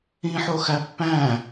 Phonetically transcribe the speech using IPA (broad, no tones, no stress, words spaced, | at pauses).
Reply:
ĩħoxæ pːæ̃